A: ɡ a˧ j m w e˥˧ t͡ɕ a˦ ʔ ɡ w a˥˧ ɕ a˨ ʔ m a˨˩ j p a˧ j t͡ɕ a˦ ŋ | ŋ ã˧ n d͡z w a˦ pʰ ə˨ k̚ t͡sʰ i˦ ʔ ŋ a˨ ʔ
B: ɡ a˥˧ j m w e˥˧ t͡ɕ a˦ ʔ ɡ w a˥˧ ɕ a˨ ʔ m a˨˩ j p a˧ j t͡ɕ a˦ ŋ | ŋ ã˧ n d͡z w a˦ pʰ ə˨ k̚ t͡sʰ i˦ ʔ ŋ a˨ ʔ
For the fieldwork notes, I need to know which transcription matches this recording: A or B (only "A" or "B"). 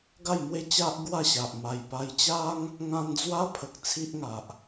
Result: B